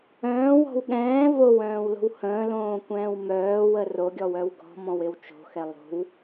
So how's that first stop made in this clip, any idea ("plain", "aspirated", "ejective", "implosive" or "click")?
implosive